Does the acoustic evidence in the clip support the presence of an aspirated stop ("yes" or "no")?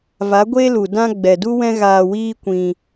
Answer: no